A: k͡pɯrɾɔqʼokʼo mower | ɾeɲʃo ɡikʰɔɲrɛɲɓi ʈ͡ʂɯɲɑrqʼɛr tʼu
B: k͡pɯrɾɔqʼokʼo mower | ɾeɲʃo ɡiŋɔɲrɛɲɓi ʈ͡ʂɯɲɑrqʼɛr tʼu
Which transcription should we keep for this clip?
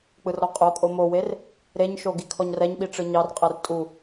A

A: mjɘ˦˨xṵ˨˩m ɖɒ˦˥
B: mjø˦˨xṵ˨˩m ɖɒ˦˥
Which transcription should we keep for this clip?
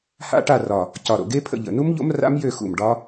B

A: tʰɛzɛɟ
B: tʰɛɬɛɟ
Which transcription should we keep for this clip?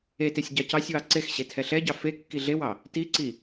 B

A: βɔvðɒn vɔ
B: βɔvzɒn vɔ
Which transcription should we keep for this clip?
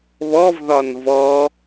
A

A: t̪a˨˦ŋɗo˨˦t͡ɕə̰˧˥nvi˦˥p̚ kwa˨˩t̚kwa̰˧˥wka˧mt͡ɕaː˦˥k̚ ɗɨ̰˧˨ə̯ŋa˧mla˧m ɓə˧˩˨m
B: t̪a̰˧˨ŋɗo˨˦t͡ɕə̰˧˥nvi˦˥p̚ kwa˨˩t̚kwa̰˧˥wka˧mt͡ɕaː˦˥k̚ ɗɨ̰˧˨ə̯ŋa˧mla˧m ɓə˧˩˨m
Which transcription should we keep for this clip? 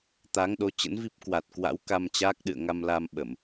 A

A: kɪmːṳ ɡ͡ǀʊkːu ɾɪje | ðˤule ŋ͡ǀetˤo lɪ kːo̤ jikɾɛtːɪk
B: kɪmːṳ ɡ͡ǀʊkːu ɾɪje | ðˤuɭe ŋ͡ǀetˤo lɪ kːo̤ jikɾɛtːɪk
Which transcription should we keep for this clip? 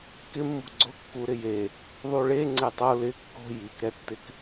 B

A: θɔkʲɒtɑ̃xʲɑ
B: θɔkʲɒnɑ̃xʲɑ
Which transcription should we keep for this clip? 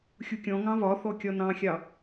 B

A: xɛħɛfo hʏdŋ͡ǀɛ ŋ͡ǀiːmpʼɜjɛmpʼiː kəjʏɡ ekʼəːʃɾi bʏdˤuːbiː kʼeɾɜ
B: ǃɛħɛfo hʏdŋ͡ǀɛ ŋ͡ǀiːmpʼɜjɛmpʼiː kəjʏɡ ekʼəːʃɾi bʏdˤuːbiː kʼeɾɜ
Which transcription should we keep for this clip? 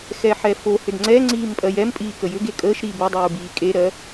A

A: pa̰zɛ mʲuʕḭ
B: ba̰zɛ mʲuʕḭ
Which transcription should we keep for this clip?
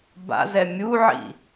B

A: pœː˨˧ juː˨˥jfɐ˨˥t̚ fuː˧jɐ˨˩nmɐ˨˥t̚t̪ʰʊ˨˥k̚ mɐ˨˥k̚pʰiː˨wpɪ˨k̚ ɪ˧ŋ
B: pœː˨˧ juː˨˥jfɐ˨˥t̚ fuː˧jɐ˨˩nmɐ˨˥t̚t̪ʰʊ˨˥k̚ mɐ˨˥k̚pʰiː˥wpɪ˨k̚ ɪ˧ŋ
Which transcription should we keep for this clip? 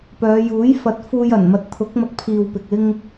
A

